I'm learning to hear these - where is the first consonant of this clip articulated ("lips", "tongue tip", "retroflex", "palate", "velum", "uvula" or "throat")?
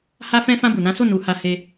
throat